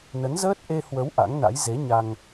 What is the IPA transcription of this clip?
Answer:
n ə˨˦ n z əː˦˥ t̚ ʔ e˧ h w ə˨˦ w ʔ a̰˧˥ ŋ n a̰˧˥ j z e˨˦ ɲ a˧ ŋ

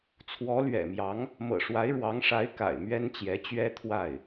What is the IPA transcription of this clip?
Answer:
t͡sʰ w ɔ˧˥ l ɥ ɛ̰˨˩ m j ɑ˧˥ ŋ | m ɤ̰˨˩ ʂ w a˧˥ ɪ̯ ɻ w ɑ˧˥ ŋ ʂ a˧˥ ɪ̯ k a̰˨˩ ɪ̯ m ɥ ɛ˥ n t͡ɕ j ɛ˧˥ t͡ɕ ɥ ɛ˥ t̪ʰ w a˥˩ ɪ̯

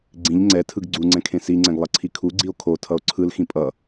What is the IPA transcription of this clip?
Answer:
ɡ͡ǀ ĩ ʎ ŋ͡ǀ ɛ tʰ ɯ ɡ ɡ͡ǀ u ŋ͡ǀ ɛ̃ kʰ ẽ s i ŋ͡ǀ ɛ̃ ɡ lˠ ʌ ǀʰ i kʰ u ɡ͡ǀ i o̯ kʰ o tʰ ʌ o̯ ǀʰ ɯ l x ĩ pʼ ʌ

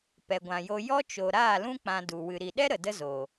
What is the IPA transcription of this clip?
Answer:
p ɛ˨ ɡʷ ã˨ j o˧ j ɔ˦ t͡ʃ o˨ ɾ aː˦˨ l ũ˦ k͡p ã˧ d u˨ w ɨ˨ ɾ i˨ ɗ ɛ˦ ɾ ə˨ d ə˦ z o˨

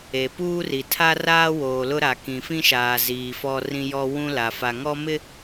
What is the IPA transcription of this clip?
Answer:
e˨ p uː˦ r i˨ tʰ a˦ r aː˦ w oː˨ l ʊ˦ ɾ a˨ k ĩ˨ f ĩ˦ ʃ aː˨ z iː˨ f ɔ˦ r ĩ˦ j ɔ˦ w ũ˦ l a˨ f a˨ ŋ ɔ˦ m ɪ˦

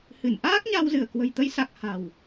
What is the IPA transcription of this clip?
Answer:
h ɨ˧˩ n ʔ aː˦˥ k̚ ɲ a˧ w z ɨ˧˩ ə̯ k w ə̤˨˩ j t̪ ə˨˦ j s a˨˩ k̚ h a̤˨˩ w

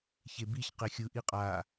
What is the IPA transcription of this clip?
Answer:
ç e b i ç q e xʲ ɯ ʔ i qʼ a

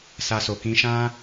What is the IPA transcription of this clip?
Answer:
s a˧ s o˨ k ĩ˧ ʃ ã˦

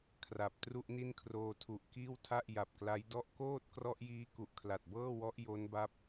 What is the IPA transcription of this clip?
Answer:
kʰ r a˨˩ p̚ t r u˥˩ ʔ n i˥˩ n kʰ r oː˧ tʰ u˨˩ ʔ k iː˥˩ w tʰ a˥˩ ʔ j a˨˩ p̚ k l a˦˥ j d ɔ˦˥ ʔ k oː˥˩ t̚ k r ɔ˦˥ ʔ j iː˦˥ k u˨˩ ʔ kʰ l a˨˩ t̚ b ɤː˥˩ w ɔ˦˥ ʔ j o˦˥ n b a˦˥ p̚

